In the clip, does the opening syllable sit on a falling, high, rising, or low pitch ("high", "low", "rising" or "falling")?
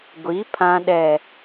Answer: rising